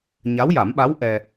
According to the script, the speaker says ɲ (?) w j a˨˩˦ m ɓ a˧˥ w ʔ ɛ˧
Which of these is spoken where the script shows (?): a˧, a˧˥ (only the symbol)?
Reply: a˧˥